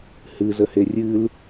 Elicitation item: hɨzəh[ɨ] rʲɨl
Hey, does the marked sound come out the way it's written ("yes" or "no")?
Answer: no